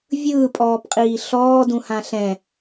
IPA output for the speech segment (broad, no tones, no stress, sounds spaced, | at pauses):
vʲ ɯː pʼ ɔː p qʼ iː ɬ ɔː d ũ h ã ɬ ɛ̃